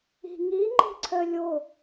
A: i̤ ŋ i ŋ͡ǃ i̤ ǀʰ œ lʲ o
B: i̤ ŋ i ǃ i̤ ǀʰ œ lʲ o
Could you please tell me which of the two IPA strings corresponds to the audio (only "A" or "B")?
A